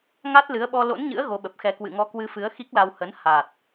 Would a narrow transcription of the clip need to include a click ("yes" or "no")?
no